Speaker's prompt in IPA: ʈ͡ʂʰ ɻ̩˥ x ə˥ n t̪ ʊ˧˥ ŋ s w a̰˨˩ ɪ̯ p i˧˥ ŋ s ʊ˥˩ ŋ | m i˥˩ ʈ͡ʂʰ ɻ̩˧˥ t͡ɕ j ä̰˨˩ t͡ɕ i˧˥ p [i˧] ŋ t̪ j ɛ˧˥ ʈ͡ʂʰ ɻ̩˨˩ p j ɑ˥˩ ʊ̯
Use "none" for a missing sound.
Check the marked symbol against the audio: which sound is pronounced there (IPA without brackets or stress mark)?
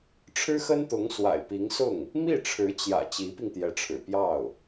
i˧